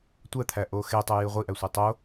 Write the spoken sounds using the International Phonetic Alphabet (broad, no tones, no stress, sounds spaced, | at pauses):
tʷ æ t̪ʰ æ ʔ o x e tˤ o j i ʁʷ i ʔ æ sʷ i tˤ o